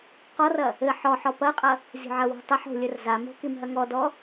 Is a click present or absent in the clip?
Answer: absent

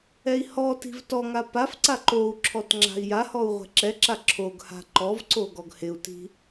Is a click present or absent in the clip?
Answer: present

